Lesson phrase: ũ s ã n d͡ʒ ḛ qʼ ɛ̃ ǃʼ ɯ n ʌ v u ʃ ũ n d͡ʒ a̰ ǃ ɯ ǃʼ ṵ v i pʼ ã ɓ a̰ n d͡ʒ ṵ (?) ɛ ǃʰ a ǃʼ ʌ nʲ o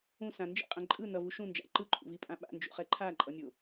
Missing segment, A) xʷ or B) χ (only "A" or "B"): B